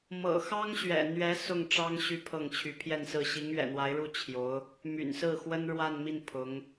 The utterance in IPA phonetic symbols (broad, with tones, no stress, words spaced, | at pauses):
mɤ̰˨˩xɑ˥ŋɕɥɛ̰˨˩n̪ɥɛ˧˥ sʊ˥˩ŋʈ͡ʂɑ˥ŋ ɕy˧˥ pʰɤ˥˩ŋt͡ɕʰy˧˥ pʰjɛ˥˧nsɹ̩˥˩ ɕi˧˥ŋɥɛ̰˨˩n̪wa˧˥ɪ̯ɻu˥˩ t͡ɕʰjo˧˥ʊ̯ | my̰˨˩nsɹ̩˥˩xwə˥n ɻwa˥˧nmi˥˩n pʰʊ˧˥ŋ